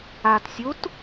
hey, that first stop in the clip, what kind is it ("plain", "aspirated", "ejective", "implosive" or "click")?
plain